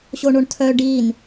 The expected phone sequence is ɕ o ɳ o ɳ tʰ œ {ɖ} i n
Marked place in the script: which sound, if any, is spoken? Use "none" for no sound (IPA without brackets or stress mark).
ɖ